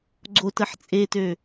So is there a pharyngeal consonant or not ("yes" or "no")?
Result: yes